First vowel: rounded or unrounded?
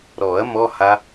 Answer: rounded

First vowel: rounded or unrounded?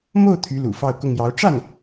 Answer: rounded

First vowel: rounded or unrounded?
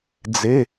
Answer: unrounded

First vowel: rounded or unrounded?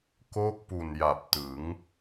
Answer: rounded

